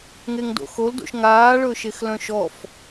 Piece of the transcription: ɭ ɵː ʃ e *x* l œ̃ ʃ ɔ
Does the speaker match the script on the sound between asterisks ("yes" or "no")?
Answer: yes